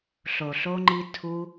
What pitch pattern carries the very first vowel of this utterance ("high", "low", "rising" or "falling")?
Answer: low